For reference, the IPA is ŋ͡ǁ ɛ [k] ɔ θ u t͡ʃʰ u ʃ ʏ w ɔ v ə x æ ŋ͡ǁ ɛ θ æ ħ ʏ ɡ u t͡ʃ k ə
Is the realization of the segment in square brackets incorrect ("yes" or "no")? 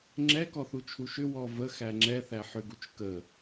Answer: no